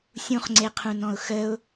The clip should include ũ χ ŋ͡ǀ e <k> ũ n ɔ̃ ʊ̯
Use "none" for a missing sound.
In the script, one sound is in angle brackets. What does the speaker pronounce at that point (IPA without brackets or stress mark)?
qʰ